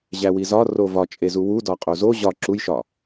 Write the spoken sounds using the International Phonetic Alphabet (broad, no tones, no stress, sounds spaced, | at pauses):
ʑ æ w i z ɒ r o v ɒ t͡ʃʼ e z u w u d ɒ qʼ o z o ʑ ɒ ǁ u j ʃ ɒ